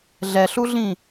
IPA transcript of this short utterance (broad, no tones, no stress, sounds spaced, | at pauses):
ɮ ɛ ɬ u ɮ ĩ